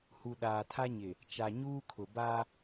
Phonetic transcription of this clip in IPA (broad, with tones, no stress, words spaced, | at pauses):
hu˨ɗaː˨tʰa˦ɲɪ˨ | t͡ʃa˨ɲuː˦kʰʊ˨ ba˦